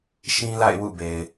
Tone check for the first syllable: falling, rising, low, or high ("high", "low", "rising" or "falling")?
high